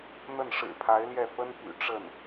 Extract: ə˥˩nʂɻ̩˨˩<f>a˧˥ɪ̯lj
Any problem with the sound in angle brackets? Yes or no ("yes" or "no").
yes